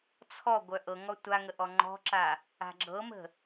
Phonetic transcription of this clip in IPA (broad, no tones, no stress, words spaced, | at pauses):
t͡sʰɔ ɡʷœʔɤŋɔ tʷaŋə ʔɔŋ͡ǃɔ̤ǁa | a̤ɡ͡ǁɤmə̤